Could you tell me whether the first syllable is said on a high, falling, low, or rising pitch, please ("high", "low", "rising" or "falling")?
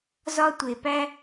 high